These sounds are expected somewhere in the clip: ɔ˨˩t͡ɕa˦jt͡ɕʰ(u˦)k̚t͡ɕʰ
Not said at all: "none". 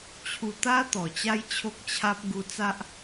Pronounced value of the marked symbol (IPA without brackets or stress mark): o˦